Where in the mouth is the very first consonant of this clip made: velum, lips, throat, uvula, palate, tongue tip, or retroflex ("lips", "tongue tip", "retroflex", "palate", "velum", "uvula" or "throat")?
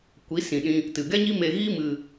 velum